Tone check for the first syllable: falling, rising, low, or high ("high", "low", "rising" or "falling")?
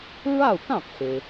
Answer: falling